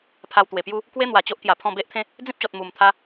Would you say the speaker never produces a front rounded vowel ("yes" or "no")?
yes